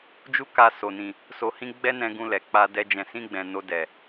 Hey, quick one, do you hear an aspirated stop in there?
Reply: no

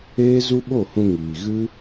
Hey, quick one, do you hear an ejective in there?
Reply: no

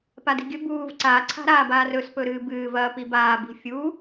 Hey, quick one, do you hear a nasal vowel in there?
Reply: no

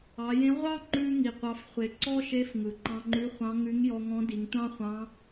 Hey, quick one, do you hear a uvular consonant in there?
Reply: yes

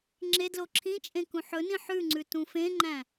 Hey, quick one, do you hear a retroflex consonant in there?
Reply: no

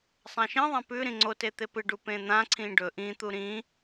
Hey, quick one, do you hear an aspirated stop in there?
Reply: yes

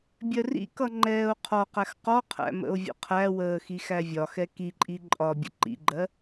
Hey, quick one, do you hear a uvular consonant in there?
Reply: yes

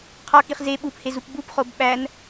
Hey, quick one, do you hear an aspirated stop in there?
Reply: yes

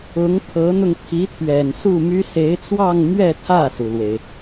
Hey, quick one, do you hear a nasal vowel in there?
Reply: no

